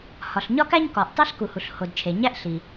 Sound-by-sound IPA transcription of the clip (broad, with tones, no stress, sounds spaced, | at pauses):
h ɒ˩ ɬ ɲ ɒ˥ k æ˥ ɲ k ɒ˩ ʔ tˤ i˥ ɬ k u˩ h u˩ ɬ h o˩ d t͡ʃʰ e˩ ɲ æ˥ ʔ ɬ i˩